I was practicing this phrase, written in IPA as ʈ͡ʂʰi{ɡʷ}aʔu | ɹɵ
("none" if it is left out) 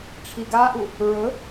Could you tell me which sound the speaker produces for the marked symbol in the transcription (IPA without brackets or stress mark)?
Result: ɡ